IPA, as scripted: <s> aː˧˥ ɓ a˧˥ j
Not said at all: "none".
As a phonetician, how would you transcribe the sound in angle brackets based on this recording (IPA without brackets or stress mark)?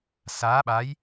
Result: s